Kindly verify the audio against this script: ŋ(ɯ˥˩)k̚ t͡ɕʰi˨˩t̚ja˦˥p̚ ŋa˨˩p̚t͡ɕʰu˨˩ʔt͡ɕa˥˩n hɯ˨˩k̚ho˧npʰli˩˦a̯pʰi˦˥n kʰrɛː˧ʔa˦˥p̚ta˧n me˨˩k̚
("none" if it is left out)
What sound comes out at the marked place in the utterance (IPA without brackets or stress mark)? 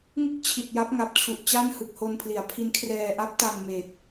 ɯ˥˩